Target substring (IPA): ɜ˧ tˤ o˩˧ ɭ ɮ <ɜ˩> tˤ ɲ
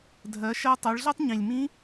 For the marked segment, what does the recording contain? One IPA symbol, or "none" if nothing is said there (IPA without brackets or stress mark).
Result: ɜ˥